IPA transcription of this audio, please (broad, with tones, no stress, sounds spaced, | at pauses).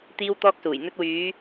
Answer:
t̪ iː˧ w t̪ ɔː˧ k̚ s uː˨˩ j n̪ ɵ˧ t̚ w yː˨˧